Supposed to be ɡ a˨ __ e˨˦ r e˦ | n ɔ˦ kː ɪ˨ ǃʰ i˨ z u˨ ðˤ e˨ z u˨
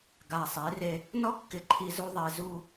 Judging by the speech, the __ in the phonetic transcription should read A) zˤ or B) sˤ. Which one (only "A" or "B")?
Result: B